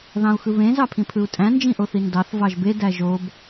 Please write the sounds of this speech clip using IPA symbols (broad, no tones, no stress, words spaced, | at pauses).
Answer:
ðɑ̃u̯xɯβẽ zɑpʰĩpʰɯu̯tʼæ̃ nd͡ʒĩʔoθindɑθ vɑʒbe dæʒob